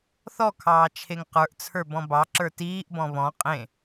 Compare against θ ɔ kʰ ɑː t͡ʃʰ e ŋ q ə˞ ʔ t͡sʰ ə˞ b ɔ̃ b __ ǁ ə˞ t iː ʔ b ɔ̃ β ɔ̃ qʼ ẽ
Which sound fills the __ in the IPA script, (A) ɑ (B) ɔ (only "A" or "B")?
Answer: A